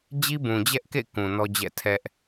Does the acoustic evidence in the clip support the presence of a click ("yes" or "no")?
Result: no